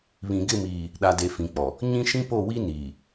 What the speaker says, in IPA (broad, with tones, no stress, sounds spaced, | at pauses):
β ĩ˨ ɡ ɪ˦˨ m iː˨ | ɗ a˨ d e˨ f ĩ˨ k͡p ɔ˨ | ɲ ĩ˦ ʃ ĩ˦ p o˦˨ w i˦ n iː˨